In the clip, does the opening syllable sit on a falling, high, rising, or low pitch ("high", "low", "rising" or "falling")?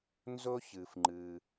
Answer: high